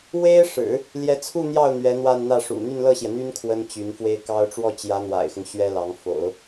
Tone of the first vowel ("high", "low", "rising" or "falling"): high